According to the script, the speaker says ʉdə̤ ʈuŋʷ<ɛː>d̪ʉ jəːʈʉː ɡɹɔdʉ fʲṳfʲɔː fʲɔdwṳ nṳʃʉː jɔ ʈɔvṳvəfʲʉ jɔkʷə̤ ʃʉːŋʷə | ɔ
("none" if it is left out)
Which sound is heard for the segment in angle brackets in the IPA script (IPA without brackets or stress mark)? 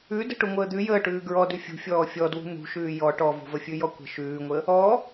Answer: əː